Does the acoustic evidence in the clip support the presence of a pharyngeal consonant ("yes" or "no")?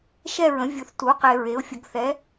no